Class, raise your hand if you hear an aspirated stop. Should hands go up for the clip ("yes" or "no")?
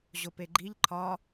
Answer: yes